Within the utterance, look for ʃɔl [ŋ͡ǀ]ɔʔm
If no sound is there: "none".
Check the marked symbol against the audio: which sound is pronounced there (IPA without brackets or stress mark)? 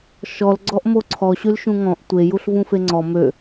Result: ɡ͡ǀ